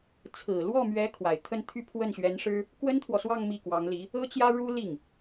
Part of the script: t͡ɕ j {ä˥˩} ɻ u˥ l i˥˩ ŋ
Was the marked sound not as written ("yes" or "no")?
yes